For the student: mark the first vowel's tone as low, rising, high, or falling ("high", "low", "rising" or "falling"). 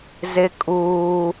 high